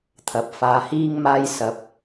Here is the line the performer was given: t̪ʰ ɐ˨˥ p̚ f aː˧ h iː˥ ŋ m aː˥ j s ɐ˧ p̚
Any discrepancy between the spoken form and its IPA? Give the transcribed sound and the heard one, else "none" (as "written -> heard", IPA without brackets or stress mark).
none